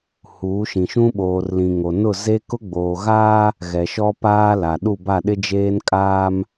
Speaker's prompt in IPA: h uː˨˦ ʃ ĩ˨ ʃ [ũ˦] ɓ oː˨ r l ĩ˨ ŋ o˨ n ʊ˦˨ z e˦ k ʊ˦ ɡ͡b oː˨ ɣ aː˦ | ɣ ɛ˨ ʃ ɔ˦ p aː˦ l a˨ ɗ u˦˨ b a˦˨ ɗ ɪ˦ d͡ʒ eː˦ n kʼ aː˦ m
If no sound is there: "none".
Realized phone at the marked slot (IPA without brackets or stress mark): ũ˦